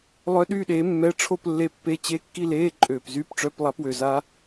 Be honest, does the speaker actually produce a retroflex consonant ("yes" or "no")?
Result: yes